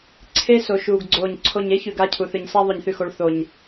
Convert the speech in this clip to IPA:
ǀʰe˦ so˨ʃuː˨ɡɡ͡ǀoː˨ɲ ǀʰo˨ɲ e˦çʉ˨ɡ a˦˨cʰu˨θɨ˨ɲsa˦ ðˤɵ˨ɲθʉ˨xo˨ɭ θo˨ɲ

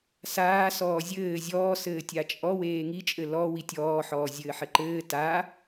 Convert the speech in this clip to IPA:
saːsɔː zʲɘː zʲɔːsɘːtʲa t͡ʃʼɔweː ŋit͡ʃʼɘ lɔ witʲɔːħɔː zʲɘːħɘǃɘː ta

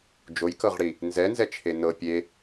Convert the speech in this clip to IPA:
d͡ʒojkɤʁɽi | nzɛnzɛt͡ʃʰe nɤ pʲe

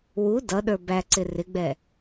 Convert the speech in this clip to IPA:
wu dʌɗə˞ bæǀɪ rɪɡ͡bɛ

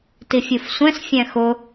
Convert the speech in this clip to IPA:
tifʲufsʷɛ̃s fʲæ̃xʊ

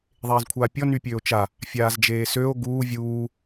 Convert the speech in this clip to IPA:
ðˤeːzkʷʰaːpʲɔ nypʲøːo̯t͡ʃa | fʲaːzd͡ʒeːsøo̯ ɡuː vʲuː

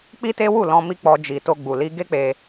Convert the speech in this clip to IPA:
k͡pi˦te˦ wu˦˨lɔ̃˧ mi˦k͡pɔ˧ d͡ʒi˨to˧ɡ͡bu˨ li˧ɡe˦k͡pe˧

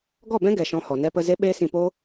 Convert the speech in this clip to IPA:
ɡɔ˦˨bɛ̃˦ɡɛ˨ ʃɔ̃˧hɔ˨nɛ˦pə˦ ze˦ɓeː˦sĩ˧po˦

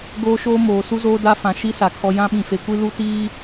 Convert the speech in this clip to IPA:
ɡoː˦ʃoː˦moː˨ su˦zoː˦ da˦fã˨ ʃi˦ sa˨ kʰɔ˦ jã˦ɓĩ˨fe˨ kʷi˦lu˦ tiː˦

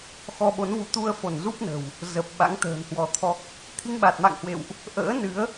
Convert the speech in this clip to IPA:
xɔ˧ɓo˨˦nvu˨˦ t̪u˧ə̯fo˧˩n zu˦˥p̚nə̤˨˩w | zə˨˩p̚ ɓa̰˧˥ŋt̪ə̤ː˨˩nhwɔ˨˦t̪ʰɔ˦˥k̚ | t̪ʰi˧ŋɓa˨˩t̚ma̰˧˨ŋhwḛ˧˨wʔ | ʔə̰ː˧˥nɨ˨˦ə̯

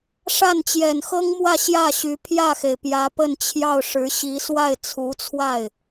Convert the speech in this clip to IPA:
ʂa˥˩nt͡ɕjɛ˨˩nxɤ˥ŋmwä˥˧ ɕjä˥˩ɕy˧˥ pʰjä˥˩xe˩ɪ̯ pjä˧˥pə˥˧n t͡ɕʰjɑ˥˩ʊ̯ʂɻ̩˧˥ɕi˧˥ swa˥˩ɪ̯ t͡sʰu˧˥t͡sʰwa˥˩ɪ̯

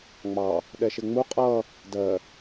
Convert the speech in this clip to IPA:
ŋ͡mɑ | ɗɛʃɪŋ͡mu qʼʌ | dɜ

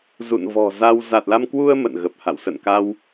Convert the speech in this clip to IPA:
zṵ˧˨nvɔ̤˨˩za˧w za˨˩t̚la˧mkwu˧ə̯ mə̰˧˨nɣə˨˩p̚ha̰˧˨w sə̰˧˨nka˧w

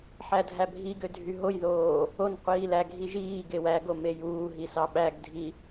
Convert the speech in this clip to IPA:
ħædʱæbʱiɡø dʱyɦojðoː | on qʷiːlæɡʱi ʒiː ɡewæɡo mejuːɦi sɑɓæɡdʱi

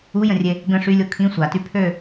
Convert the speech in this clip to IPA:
ujə̃rʲe | ɡə̃ ʂylʲo kʰĩ sʷaty pʰø

